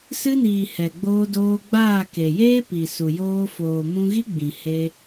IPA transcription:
s ɨ˧ n iː˨ h ɛ˨ ɡ͡b oː˧ d oː˧ ɡ͡b aː˦˨ k e˨ j eː˦ p i˨ s u˨ j oː˧ f oː˨ m ũ˧ ɣ i˦ ɡ͡b ĩ˨ h e˧

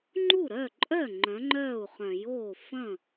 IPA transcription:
ŋ͡ǃ u˥˩ ɾ œ˥˩ ǃʼ œ˥˩ ŋ͡ǃ œ̃˨˥ ŋ͡ǃ œː˥˩ u̯ χ œ̃˨˩˦ j oː˥˩ f ə̃˥˩

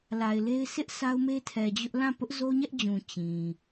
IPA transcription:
l a˨ ɪ̯ l e˦ ɪ̯ s ɪ˦ ʔ sʰ a˦ ʊ̯ m e˦ tʰ ɛ˨ d͡ʑ ʊ˦ ʔ l ã˦˨ p ʊ˦ ʔ z o˦ ɲ ɛ˦ ʔ d͡ʑ ũ˨ t͡ɕ ĩ˨

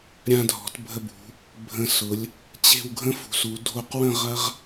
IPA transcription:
ɾʲ ã˧ dʱ ɔ̤˩˧ t bʱ ə˧ b ṳ˩˧ | bʱ ə̃˧ s ʊ˩˧ lʲ | t͡ɕ e̤˥˧ w ɡʱ ə̃˥ f ṳ˩˧ s u˩˧ dʱ o˧˩ q w ə̃˥˧ ʁ ɐ˥ ʁ

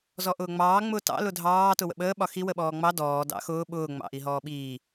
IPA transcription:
z ɔ ʔ ʊː ŋ͡m ɑː ŋ͡m ʊː t ɑ̰ l ʊ dʱ ɑː t ʊ w ə̰ ɓ əː ɓ ɒ x i w ə ɓ ɔː ŋ͡m ɑ d ɔː d ɑ̰ x ʊː ɓ ʊː ŋ͡m ɑ̰ ʔ i ɦ ɔː ɓ iː

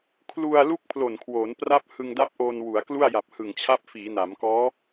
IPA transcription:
kʰ l u˧ a̯ l u˥˩ k̚ pʰ l o˨˩ n kʰ w oː˩˦ n p r a˦˥ p̚ h ɯ˧ ŋ d a˦˥ p̚ ʔ oː˧ n w u˩˦ a̯ k l u˥˩ a̯ j a˨˩ p̚ h ɯ˨˩ ŋ t͡ɕʰ a˦˥ p̚ f iː˩˦ n a˩˦ m k ɔː˦˥

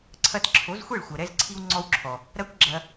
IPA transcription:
ǀʰ ɐ˧ t ǁʰ o˨˦ z xʷ e˦˨ ɭ xʷ ɐ˨ ɾ ɛ˧ z ǀʰ i˧ w ŋ͡ǀ ɔ˧ w ǁʰ ɔ˨ | ɾ ɐ˦ kʷ ɡ͡ǁ ɐ˧

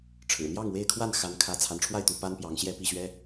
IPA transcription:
ʈ͡ʂʰ ɻ̩˨˩ n̪ j ɑ˥˨ ŋ w e˥˨ ɪ̯ kʰ w a˥˨ n x a˦ n kʰ ä˥˨ t͡sʰ a˨˦ n ʈ͡ʂʰ w a˥˨ ɪ̯ t̪ u˨˦ p a˦ n p j ɑ˨˦ ŋ ɕ j ɛ˥˨ p i˥˨ ɕ ɥ ɛ˦

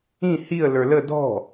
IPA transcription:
ĩ h i ə̯ l ə˞ l ə d ɔ̤

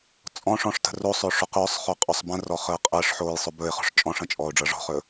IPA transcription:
t͡sʼ ɔ̃ ʂ ɔ̃ ʂ t ə̤ r o sˤ ʏː ʂ ʏ q ʏː sˤ χ ʏː qʼ ɵ sˤ b ə̃ r ɔ χ əː qʼ əː ʂ ħ oː j sˤ ʏ b ɵ ɪ̯ χ ɔ̤ ʂ t͡ʃʼ ɔ̃ ʂ ə̃ t͡ʃʼ ɔː ʊ̯ ɖ͡ʐ ɤ ʐ ɔ̤ χ ɵ

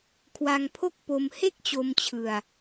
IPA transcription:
kʰ w a˧ ŋ pʰ o˥˩ k̚ p o˧ m h e˥˩ k̚ t͡ɕ o˧ m t͡ɕʰ ɯ˧ a̯

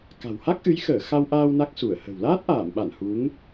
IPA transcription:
k a̤˨˩ w h a˦˥ k̚ ʔ ɨ˨˦ j x əː˧˩ x a˧ w ʔ aː˧ w n a˦˥ k̚ s u˧˩ ə̯ h ə̤˨˩ w l aː˦˥ t̚ ʔ aː˧˩ m ɓ a˧˩ n h u˨˦ ŋ

